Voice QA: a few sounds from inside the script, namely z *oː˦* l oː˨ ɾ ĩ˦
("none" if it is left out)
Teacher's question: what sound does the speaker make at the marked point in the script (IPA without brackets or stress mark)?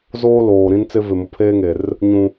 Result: oː˦